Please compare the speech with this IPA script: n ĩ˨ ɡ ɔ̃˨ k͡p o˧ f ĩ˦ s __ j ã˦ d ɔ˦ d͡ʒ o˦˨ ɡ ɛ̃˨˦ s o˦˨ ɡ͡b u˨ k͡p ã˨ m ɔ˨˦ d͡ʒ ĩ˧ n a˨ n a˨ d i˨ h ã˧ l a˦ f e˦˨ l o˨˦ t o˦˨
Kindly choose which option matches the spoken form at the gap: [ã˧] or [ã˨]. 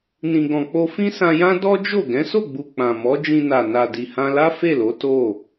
ã˧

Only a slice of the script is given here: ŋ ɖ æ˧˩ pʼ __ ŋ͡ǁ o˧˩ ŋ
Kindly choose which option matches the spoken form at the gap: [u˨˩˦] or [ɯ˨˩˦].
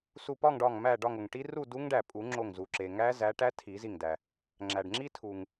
u˨˩˦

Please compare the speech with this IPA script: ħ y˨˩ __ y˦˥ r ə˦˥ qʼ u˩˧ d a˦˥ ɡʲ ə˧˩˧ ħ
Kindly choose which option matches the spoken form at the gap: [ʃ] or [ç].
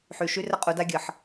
ʃ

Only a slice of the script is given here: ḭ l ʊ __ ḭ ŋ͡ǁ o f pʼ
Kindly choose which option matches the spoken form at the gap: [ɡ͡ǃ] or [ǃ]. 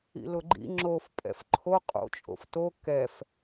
ɡ͡ǃ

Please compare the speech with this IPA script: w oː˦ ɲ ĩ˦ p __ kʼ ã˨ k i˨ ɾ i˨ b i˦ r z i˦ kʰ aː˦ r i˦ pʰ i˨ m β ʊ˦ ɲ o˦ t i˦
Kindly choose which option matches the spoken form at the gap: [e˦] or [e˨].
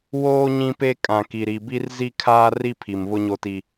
e˦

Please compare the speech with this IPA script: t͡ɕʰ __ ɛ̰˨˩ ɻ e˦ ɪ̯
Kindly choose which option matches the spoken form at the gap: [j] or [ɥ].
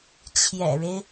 j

